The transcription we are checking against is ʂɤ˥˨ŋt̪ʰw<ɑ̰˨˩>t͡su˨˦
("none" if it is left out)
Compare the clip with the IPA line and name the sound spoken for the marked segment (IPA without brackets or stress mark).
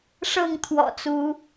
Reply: ɔ̰˨˩